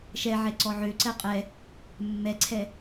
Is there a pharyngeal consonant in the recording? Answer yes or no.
yes